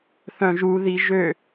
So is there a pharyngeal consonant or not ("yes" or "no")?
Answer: no